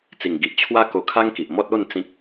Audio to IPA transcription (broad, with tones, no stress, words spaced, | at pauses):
t͡si˨˩ŋ ɡi˨ʔt͡ɕʰwa˦ ko˧kʰa˦ŋki˨ʔmɔ˦t̚ o˥˧n t͡sĩ˦k̚